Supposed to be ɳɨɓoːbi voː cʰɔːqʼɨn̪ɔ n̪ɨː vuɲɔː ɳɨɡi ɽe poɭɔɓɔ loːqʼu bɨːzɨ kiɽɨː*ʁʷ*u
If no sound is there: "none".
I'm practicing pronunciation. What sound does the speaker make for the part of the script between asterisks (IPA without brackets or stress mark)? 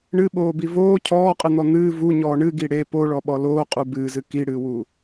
w